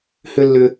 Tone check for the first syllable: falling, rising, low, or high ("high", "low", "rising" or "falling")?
high